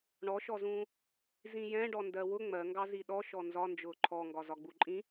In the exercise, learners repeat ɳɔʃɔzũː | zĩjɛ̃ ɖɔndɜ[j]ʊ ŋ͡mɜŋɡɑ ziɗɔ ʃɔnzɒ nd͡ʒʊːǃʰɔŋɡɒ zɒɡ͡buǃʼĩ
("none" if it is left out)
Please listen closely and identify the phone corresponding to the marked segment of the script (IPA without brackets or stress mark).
w